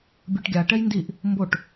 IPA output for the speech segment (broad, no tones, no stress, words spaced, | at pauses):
bʲoʈɡʲaʈɛj ndiʔ | mboʈ